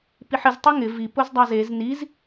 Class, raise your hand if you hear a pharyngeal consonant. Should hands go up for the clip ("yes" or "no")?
yes